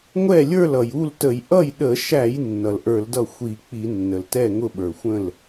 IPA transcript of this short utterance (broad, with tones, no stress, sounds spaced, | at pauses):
ŋʷ ɛ˥˩ lʲ ə˞˥˩ l ʌ˩ j u˥˩ l t ə˧˩˧ j ʔ ʌ˥˩ j ɗ ə˧˩˧ ʃ æ˧˩˧ j nː ʌ˩ l ʔ ə˞˧˩˧ l d ʌ˥˩ xʷ i˧˩˧ k͡p i˧˩˧ nː ə˩ l t ɛ˥˩ ŋ ʊ˥˩ ɓ ə˞˩ xʷ ə̃˥˩ l